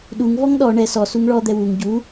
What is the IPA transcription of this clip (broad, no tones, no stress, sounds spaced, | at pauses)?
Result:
ɗ u ŋ v ɔ ŋ ɗ ɔ ɳ ɛ s ɔ s u ŋ ɭ ɔ d̪ ɛ w u ŋ ɟ u